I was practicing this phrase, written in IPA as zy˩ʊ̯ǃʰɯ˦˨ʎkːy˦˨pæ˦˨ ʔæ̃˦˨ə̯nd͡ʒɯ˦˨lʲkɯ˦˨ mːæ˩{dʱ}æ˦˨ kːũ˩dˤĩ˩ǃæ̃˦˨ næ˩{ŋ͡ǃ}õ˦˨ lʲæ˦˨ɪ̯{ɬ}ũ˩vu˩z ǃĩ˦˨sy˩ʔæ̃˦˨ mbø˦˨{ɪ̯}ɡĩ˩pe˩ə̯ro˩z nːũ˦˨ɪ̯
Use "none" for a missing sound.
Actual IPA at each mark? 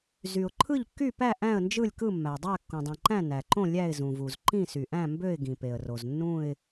dˤ, ǃ, z, ɪ̯

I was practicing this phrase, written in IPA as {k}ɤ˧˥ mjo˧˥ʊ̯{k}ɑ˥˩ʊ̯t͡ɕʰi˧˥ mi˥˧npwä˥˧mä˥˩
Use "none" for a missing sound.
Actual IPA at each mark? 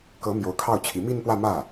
k, kʰ

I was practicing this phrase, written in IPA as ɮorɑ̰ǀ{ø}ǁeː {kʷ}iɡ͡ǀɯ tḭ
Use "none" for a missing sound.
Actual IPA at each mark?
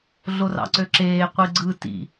ø, qʷ

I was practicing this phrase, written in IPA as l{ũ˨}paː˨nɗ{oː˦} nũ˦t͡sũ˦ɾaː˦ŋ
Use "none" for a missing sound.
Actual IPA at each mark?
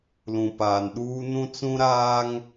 ũ˨, uː˦

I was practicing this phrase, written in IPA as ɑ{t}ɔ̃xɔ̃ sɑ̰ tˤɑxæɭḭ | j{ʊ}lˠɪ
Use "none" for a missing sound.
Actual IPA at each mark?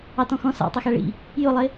t, ʊ

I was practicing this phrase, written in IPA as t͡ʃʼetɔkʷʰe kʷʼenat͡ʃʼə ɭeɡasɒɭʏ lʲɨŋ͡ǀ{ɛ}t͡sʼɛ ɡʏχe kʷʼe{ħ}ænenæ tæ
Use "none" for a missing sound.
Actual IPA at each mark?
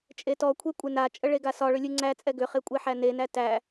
æ, ħ

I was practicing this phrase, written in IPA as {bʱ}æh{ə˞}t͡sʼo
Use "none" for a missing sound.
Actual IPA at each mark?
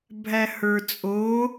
bʱ, ə˞

